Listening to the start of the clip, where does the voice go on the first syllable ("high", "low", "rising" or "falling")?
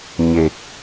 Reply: low